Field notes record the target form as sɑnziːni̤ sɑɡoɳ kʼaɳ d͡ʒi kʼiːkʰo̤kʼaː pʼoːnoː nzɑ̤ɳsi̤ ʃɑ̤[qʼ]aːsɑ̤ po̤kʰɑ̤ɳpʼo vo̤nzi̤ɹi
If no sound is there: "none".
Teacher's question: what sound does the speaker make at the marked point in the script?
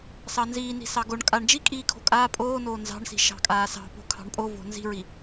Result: kʼ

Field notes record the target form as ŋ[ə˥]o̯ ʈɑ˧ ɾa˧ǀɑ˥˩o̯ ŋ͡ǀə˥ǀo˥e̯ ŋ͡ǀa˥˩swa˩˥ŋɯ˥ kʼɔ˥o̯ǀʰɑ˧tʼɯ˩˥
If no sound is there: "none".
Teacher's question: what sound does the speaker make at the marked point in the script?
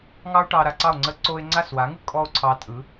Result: ɑ˥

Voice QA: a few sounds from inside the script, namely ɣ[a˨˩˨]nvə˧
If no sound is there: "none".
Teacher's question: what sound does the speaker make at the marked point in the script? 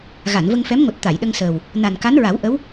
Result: a˨˩˨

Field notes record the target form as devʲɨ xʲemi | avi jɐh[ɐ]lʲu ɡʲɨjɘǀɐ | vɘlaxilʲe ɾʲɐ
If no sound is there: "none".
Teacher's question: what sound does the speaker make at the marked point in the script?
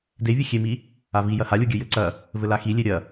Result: a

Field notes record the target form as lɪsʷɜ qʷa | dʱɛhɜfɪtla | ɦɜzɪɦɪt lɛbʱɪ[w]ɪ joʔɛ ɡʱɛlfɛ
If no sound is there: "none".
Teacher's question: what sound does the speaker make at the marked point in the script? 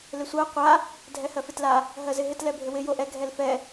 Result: w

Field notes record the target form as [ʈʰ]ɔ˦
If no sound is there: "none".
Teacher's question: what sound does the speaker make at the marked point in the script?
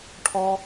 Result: ʈʰ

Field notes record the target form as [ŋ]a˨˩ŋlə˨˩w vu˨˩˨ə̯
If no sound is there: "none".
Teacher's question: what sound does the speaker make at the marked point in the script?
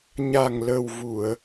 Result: ɲ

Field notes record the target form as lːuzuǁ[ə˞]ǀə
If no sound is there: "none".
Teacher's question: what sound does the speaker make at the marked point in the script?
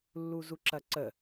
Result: ɐ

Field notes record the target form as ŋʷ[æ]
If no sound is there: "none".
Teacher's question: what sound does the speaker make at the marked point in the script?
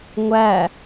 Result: æ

